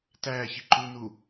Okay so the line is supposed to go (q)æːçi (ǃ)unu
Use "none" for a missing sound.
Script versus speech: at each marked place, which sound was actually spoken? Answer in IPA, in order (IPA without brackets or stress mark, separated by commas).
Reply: t, ǃ